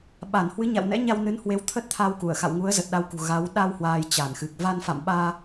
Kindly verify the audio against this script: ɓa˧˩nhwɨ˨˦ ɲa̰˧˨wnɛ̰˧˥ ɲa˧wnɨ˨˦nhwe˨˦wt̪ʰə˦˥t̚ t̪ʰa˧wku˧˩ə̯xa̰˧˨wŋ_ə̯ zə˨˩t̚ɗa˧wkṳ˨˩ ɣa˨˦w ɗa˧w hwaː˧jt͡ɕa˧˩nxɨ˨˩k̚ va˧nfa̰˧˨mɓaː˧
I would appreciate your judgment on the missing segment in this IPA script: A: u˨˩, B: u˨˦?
B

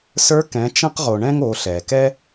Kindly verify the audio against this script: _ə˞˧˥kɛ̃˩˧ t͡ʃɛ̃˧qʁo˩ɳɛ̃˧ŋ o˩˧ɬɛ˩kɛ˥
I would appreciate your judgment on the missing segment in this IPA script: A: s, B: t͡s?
A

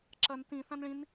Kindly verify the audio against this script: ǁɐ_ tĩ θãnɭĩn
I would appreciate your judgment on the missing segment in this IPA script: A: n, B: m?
A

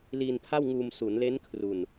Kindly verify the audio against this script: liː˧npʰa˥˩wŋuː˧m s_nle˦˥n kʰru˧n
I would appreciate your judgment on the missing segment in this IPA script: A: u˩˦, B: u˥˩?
A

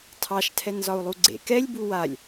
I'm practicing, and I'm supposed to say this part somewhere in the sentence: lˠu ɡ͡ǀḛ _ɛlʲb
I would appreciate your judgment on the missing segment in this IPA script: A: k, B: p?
A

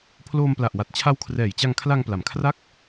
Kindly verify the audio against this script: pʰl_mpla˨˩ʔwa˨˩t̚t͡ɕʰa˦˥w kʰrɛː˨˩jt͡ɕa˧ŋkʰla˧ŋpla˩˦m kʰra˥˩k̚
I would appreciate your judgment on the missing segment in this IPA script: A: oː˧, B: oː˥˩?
A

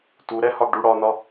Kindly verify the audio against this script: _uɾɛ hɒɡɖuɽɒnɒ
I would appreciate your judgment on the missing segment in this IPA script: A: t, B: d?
A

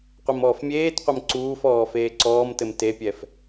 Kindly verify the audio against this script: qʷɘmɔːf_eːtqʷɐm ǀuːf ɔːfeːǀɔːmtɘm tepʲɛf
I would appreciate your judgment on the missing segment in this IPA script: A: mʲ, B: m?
A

